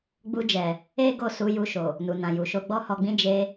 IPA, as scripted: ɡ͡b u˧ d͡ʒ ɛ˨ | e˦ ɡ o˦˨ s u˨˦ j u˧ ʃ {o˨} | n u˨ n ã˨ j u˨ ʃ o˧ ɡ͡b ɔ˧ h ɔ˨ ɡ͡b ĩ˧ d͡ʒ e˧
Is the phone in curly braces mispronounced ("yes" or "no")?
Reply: no